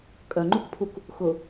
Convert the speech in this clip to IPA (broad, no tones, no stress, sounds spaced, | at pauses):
kʼ œ ŋ͡ǃ u k pʰ u k | x ʊ